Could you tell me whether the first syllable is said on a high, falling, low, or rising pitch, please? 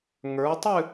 rising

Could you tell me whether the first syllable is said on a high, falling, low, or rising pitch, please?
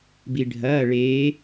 low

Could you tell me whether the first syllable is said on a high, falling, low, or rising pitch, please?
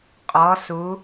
rising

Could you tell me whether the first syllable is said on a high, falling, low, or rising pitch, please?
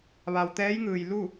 low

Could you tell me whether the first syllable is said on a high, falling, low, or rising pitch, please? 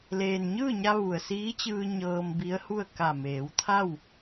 low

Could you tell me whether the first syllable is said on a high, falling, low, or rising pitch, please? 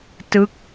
falling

